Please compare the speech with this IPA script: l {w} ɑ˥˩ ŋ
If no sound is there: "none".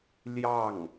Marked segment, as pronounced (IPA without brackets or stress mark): j